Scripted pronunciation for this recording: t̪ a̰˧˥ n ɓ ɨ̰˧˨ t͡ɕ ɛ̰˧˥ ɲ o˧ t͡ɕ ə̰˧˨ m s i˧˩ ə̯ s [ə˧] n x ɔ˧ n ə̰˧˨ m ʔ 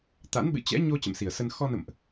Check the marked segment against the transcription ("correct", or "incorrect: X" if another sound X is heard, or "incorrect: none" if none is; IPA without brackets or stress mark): correct